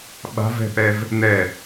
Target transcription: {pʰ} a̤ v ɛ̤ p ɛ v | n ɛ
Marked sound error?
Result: yes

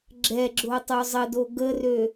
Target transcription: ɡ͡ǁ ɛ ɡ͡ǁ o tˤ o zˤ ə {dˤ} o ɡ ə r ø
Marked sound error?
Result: yes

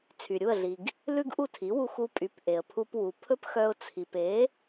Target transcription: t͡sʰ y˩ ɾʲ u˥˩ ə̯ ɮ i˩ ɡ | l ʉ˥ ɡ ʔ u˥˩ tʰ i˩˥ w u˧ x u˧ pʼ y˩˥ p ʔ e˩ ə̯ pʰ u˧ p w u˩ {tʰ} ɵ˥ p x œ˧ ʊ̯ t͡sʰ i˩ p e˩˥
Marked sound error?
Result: yes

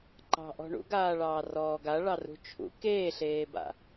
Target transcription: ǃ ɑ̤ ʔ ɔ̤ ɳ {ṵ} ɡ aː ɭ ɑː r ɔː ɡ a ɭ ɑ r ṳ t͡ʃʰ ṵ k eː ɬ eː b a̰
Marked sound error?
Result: no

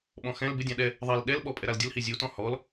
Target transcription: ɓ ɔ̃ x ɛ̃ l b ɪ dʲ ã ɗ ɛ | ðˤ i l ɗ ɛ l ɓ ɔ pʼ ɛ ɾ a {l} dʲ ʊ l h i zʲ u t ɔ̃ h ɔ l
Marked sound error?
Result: no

